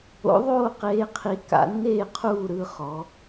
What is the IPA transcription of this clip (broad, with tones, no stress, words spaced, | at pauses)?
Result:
o̰˧˥ðˤoː˥˨qeː˧˥qʰi˧˥ ka̰˧˥nːeː˥˨qʰuː˥˨ ɾɯ˥˨χɔ˧˥